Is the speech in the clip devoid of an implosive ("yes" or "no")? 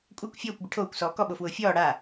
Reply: no